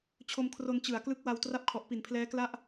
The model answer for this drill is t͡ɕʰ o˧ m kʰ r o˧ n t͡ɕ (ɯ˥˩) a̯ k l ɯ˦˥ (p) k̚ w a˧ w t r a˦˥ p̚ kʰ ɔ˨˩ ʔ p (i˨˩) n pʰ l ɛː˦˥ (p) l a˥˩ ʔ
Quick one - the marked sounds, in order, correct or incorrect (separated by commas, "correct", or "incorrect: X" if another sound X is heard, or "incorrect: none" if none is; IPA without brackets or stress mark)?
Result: incorrect: ɯ˨˩, incorrect: none, correct, incorrect: k